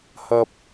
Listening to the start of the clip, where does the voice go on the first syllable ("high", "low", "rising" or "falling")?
low